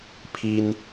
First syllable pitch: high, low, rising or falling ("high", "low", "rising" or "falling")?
high